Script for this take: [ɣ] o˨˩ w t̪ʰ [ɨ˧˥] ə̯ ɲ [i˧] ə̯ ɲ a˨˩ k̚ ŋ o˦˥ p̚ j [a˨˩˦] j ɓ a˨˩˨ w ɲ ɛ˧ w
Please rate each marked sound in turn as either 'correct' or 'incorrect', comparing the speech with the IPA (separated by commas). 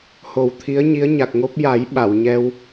incorrect, incorrect, incorrect, correct